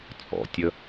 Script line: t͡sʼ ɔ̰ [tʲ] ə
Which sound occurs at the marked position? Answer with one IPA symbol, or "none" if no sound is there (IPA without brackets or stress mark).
tʲ